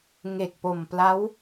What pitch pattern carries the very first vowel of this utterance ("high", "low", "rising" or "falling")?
low